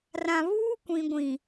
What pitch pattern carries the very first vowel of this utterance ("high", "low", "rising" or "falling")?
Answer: low